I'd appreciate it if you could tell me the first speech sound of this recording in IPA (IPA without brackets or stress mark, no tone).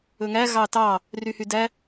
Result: ɵ